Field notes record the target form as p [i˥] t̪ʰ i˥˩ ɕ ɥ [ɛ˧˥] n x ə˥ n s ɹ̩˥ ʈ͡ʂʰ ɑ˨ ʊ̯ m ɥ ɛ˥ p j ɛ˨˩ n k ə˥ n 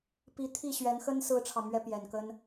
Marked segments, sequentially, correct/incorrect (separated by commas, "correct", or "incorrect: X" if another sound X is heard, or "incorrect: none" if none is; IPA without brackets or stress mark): incorrect: i˧˥, correct